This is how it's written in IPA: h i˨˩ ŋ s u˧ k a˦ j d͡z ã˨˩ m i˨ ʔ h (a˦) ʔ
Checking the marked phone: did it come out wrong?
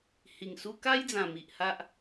no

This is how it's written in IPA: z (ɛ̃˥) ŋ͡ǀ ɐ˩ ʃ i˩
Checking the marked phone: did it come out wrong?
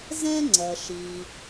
no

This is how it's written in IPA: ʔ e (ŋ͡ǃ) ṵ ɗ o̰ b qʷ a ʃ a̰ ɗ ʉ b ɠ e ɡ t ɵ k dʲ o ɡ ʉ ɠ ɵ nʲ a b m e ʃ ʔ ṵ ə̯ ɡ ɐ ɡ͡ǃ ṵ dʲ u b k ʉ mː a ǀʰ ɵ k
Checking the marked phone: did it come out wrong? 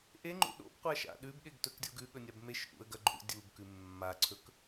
no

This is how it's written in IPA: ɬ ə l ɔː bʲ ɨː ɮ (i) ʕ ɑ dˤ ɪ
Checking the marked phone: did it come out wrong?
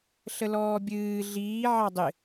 yes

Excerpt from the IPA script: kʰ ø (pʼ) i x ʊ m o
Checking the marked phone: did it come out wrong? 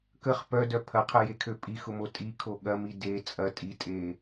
no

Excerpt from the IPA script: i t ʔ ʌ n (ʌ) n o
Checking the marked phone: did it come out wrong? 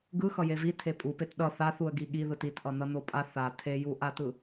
no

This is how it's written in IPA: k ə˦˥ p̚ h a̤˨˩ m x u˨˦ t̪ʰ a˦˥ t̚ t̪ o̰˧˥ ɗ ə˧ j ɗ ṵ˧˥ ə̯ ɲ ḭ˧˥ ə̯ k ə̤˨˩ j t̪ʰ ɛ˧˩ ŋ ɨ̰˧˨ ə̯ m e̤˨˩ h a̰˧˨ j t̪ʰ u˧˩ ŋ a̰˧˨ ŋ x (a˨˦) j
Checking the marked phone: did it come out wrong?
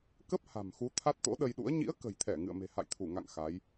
no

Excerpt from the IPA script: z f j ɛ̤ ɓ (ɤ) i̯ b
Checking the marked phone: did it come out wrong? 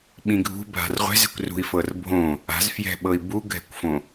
no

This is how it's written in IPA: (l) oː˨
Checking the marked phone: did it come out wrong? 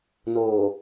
yes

